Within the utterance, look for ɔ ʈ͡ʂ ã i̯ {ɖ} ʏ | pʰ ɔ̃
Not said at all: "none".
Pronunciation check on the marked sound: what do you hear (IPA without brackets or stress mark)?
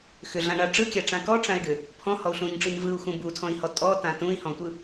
ɖ